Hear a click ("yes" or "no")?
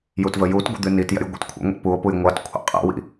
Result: no